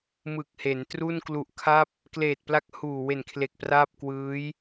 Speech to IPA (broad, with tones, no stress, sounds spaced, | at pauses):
m ɯ˨˩ k̚ h e˩˦ n t r u˥˩ n k l u˨˩ ʔ kʰ a˦˥ p̚ | k l eː˨˩ t̚ p l a˦˥ k̚ h uː˨˩ w e˨˩ n kʰ l e˨˩ k̚ p r aː˥˩ p̚ k w ɯː˦˥ j